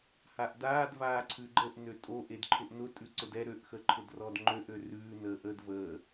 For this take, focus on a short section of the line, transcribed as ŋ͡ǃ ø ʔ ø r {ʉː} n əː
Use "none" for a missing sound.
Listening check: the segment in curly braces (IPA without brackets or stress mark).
ʉː